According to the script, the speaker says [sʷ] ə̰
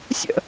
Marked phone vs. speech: incorrect: sʲ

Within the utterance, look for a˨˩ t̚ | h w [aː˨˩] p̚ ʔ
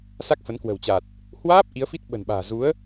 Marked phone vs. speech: incorrect: aː˦˥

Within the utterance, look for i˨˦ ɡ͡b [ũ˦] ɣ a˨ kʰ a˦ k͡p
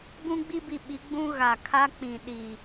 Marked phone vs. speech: correct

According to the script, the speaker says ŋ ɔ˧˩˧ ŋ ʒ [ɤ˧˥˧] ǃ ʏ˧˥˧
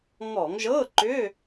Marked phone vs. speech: correct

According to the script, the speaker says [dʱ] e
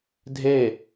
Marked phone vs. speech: correct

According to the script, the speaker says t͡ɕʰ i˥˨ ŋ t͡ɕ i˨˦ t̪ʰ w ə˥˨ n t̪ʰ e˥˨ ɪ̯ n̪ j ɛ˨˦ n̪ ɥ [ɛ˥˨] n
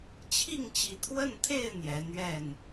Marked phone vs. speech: correct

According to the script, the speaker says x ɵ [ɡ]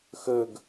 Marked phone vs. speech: correct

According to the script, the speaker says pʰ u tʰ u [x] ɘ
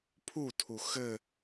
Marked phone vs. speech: correct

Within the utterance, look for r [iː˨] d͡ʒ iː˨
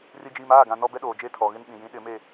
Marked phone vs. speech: incorrect: i˨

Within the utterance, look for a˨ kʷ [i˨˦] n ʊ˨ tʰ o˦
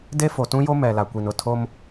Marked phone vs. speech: incorrect: i˨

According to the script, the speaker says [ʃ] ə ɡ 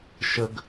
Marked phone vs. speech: correct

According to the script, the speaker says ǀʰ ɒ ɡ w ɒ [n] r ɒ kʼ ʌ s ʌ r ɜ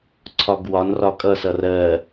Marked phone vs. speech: correct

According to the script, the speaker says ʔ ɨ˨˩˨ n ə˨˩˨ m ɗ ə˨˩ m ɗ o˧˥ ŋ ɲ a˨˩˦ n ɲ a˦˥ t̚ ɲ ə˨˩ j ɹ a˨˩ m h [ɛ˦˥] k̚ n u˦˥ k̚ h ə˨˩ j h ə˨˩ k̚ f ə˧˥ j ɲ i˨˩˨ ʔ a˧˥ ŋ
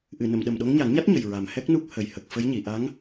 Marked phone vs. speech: correct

